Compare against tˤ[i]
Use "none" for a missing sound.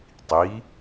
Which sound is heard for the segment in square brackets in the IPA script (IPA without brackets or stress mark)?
i